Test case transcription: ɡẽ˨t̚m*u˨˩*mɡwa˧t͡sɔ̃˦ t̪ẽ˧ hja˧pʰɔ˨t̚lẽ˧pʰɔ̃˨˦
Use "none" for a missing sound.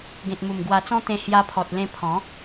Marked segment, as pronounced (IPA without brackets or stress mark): u˨˩